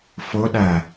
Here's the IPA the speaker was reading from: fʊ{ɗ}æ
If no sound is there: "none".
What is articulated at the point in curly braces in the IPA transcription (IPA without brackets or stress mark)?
ɗ